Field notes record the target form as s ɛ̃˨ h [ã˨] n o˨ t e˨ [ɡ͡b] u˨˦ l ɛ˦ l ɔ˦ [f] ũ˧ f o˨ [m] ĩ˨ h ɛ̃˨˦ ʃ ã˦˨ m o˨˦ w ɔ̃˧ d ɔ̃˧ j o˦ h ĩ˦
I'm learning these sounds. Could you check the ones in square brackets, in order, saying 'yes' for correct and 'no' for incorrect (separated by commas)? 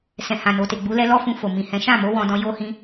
yes, yes, yes, yes